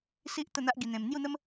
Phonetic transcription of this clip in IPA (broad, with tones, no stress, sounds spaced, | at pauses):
s i˦ ʔ t̪ ə˥˧ n̪ a˦ ʔ ɡ i˧ n̪ ẽ˧ m n̪ j u˥˧ n̪ ə˦ m